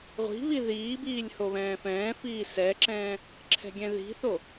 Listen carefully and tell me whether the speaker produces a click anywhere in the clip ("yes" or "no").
yes